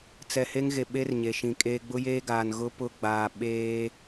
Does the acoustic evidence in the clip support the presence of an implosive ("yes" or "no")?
yes